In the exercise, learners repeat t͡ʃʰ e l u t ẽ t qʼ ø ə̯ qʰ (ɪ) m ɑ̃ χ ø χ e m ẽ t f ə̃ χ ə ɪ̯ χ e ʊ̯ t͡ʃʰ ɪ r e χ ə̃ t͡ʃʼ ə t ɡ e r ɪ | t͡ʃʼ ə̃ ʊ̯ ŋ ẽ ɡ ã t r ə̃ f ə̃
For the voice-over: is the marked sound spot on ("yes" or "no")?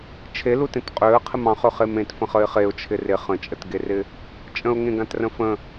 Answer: yes